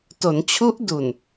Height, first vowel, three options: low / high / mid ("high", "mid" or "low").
mid